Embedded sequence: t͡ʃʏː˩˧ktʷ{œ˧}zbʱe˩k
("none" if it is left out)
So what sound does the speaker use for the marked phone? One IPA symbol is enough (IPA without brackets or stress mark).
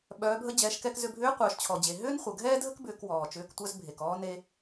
œ˧